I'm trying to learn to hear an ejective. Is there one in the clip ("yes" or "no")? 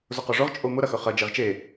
yes